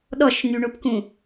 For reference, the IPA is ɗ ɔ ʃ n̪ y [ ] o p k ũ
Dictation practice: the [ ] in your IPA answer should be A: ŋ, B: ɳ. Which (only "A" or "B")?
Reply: B